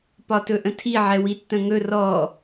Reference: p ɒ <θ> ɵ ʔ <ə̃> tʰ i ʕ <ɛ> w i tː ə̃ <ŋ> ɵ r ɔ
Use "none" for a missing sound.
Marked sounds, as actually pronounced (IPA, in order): t, ə̃, ɛ, ŋ

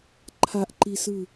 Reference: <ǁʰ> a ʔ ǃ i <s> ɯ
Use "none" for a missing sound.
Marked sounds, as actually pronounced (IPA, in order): ǃʰ, s

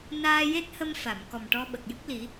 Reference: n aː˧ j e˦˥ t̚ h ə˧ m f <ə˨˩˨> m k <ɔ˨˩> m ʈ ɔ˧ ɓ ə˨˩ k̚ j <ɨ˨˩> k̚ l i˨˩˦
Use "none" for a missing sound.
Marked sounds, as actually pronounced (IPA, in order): a˨˩˨, ɔ˨˩, ɨ˦˥

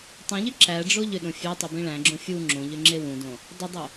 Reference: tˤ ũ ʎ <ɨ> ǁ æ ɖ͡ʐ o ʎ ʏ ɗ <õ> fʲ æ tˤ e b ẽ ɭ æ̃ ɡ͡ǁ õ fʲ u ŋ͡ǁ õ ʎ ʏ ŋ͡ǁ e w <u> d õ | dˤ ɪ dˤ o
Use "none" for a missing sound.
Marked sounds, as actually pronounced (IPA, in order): ʏ, õ, ũ

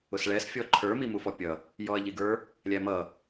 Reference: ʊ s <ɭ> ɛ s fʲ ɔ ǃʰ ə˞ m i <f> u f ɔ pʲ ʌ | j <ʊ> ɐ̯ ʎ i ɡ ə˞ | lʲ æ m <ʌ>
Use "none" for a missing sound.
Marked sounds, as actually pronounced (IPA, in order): ɭ, m, ɔ, ʌ

